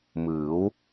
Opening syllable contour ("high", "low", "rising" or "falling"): rising